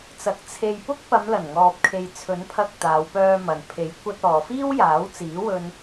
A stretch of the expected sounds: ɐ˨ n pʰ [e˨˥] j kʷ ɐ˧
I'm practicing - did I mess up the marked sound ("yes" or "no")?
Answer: no